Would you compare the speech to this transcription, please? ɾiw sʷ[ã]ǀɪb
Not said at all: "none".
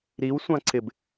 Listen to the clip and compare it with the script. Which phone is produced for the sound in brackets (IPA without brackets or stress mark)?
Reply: ã